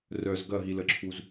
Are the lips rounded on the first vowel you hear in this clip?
yes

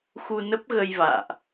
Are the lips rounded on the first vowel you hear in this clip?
yes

